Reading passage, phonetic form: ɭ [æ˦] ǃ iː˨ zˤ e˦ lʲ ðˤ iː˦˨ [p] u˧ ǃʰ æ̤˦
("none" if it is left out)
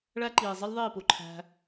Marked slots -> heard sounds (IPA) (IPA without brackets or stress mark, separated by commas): æ˦, p